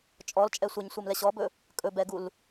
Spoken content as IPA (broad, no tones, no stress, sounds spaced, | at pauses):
t͡ʃʼ ɔ l t͡ʃʼ ɛ sʷ ɘ ɲ sʷ ɘ m l ɛ ɕ ɔ b ɵ | kʼ ɵ b ɛ ɡ u l